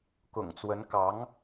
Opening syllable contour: low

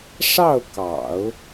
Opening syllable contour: falling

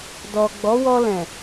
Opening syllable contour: low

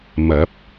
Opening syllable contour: rising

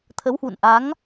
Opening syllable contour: rising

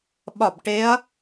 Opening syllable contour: falling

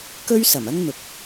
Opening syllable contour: high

